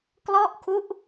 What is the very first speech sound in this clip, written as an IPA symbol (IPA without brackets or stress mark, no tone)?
k